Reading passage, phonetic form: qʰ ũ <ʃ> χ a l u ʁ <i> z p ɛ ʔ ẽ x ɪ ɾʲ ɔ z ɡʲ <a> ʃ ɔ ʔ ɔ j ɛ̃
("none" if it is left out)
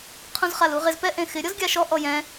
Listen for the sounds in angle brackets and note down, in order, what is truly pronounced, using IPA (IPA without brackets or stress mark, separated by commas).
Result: z, ɪ, a